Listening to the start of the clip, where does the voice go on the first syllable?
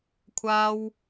high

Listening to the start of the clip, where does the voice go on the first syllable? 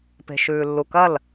low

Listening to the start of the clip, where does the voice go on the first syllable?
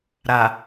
low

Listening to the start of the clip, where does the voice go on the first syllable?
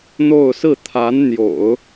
falling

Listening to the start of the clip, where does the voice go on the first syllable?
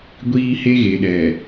high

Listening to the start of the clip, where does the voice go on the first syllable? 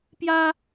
high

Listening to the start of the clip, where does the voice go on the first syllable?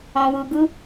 low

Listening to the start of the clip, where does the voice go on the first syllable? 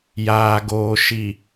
low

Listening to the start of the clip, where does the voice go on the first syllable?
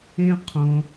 high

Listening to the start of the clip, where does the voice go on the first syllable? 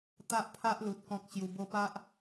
high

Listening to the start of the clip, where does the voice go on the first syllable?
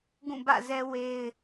falling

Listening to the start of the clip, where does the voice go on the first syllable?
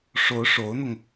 rising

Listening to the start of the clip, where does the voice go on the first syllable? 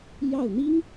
falling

